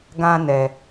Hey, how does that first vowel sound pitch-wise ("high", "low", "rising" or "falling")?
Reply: high